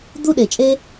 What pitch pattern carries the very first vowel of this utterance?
high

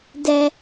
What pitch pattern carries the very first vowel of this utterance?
high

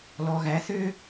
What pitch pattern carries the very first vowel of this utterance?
low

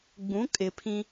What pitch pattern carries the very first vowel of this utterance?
rising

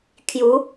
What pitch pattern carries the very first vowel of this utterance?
rising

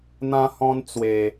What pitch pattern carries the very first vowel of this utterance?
high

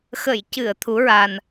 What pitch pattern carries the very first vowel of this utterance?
low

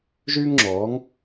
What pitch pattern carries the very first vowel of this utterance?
high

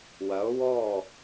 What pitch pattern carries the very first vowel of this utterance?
rising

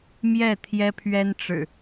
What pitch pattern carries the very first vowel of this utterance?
falling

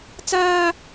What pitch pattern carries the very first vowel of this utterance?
high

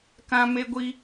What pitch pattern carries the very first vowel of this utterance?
high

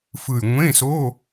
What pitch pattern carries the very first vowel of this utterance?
low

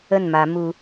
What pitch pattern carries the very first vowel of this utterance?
falling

